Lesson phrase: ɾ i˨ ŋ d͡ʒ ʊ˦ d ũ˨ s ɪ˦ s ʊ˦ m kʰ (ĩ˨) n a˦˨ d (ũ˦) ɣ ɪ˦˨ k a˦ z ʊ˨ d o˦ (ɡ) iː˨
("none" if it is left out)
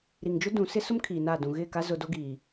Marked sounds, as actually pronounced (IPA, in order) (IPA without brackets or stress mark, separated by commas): i˨, ũ˨, ɡ